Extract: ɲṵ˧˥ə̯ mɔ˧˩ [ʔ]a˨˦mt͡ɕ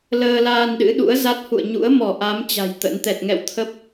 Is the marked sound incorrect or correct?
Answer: correct